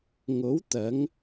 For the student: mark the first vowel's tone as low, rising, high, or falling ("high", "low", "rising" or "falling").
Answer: rising